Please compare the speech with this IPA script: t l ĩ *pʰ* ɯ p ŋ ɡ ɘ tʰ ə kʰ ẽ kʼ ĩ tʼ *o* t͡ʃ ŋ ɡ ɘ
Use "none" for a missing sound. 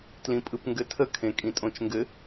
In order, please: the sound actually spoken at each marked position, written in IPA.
pʼ, õ

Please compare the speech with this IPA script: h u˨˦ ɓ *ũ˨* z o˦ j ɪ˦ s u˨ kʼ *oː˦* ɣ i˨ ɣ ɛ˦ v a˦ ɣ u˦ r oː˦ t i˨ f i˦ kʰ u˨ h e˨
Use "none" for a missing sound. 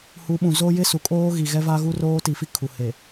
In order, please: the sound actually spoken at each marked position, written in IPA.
ũ˨, oː˦

